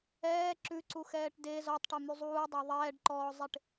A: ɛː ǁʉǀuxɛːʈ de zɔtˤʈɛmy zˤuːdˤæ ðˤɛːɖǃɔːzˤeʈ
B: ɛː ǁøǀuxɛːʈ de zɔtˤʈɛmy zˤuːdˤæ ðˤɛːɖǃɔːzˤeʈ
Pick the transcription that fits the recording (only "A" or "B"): A